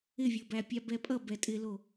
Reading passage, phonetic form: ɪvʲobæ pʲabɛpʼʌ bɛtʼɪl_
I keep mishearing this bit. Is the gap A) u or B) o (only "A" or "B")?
B